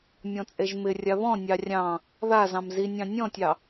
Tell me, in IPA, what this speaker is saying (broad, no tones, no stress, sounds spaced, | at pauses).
mʲ ɔ̃ t͡sʼ e ʒ m ɪ rʲ a β ɔ̃ nʲ ɑ rʲ ɑ̃ | ð a z ɑ̃ m z i nʲ ɑ̃ nʲ ɔ̃ tʲ ɑ